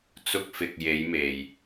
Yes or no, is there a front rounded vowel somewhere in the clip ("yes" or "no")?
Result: no